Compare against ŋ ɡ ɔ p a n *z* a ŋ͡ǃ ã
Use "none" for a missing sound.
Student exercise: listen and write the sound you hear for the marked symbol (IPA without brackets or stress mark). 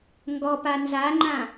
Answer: z